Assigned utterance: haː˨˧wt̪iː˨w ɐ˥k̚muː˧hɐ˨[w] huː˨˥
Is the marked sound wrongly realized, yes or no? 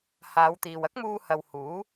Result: no